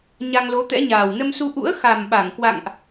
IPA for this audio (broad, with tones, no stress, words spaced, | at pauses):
ɲa˧ŋlo˨˦t̪ɛ̰˧˥ɲaː˨˩w nə˧msu˧ ʔṵ˧˥ə̯ xa˨˩mɓa˧˩ŋkwa̰˧˨ŋʔ